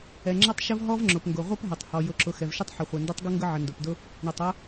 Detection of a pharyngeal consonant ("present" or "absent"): present